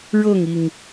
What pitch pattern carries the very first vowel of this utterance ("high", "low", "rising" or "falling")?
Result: falling